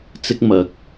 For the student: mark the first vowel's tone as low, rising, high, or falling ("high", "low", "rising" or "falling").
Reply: high